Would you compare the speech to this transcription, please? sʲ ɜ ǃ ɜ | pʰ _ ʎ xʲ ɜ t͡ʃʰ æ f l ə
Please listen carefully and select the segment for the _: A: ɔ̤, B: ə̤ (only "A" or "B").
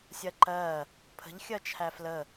B